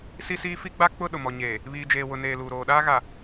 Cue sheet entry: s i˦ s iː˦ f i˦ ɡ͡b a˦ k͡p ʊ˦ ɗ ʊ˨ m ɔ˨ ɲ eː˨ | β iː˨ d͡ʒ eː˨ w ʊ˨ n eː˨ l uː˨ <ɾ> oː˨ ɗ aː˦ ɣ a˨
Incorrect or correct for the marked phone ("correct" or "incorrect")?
correct